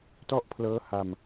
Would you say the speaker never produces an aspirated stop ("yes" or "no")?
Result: no